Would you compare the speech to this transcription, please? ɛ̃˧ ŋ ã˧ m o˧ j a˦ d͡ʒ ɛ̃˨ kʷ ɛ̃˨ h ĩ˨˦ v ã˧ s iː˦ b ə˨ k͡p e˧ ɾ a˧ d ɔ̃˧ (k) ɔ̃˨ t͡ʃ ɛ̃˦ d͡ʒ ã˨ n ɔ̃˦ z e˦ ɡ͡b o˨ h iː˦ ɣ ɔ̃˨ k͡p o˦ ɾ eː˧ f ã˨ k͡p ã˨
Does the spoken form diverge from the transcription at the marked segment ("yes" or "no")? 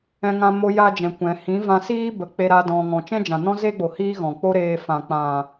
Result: yes